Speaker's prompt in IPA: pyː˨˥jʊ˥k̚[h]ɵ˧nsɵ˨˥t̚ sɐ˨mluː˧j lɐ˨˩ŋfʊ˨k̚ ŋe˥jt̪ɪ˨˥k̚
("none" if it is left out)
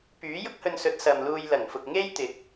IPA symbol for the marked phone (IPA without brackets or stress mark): h